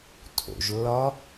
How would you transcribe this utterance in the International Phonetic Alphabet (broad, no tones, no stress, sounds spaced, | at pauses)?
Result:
tʰ o̰ ʒ lː ɒ